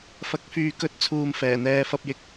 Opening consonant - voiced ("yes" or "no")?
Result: no